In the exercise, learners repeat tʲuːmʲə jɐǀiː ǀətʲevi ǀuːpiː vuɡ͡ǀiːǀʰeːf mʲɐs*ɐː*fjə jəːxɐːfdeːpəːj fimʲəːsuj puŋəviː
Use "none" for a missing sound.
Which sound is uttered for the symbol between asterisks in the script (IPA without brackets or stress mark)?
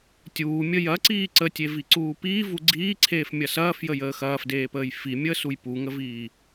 ɐː